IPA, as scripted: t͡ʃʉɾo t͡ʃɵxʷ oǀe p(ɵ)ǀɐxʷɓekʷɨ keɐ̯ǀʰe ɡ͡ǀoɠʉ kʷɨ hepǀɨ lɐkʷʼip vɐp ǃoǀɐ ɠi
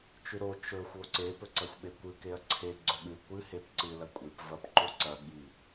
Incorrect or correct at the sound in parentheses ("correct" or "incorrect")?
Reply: correct